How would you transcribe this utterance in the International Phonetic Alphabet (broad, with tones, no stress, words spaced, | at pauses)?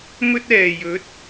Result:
mɵ˧t̚ɛː˨˩ jɵ˨˥t̚